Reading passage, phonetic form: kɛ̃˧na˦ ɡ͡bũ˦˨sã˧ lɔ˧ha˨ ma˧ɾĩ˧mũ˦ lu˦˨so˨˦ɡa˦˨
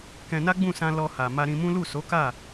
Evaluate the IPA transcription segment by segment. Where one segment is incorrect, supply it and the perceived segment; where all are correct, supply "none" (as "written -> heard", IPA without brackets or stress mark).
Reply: ɡ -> k